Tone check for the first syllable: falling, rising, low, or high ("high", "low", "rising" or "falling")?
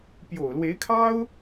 low